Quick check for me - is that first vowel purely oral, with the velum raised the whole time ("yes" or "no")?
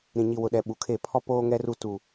no